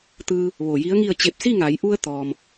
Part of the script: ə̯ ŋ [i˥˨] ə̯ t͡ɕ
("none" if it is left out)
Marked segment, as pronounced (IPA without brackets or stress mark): i˥˨